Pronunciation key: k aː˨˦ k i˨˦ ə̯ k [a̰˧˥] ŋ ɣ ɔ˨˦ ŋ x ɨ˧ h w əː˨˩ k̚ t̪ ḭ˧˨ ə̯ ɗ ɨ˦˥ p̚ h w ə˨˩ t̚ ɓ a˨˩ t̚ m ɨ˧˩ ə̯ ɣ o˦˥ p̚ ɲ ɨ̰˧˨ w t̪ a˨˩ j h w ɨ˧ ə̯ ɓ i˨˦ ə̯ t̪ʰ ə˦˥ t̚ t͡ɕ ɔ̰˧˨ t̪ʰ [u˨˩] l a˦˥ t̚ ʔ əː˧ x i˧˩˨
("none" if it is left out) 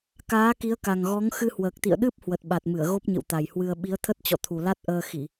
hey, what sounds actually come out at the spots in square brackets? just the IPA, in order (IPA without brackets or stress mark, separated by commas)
a˨˩, u˨˩